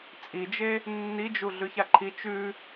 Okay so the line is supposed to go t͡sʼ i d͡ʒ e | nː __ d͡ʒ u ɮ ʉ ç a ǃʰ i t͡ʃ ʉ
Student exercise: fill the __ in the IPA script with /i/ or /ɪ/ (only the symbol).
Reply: i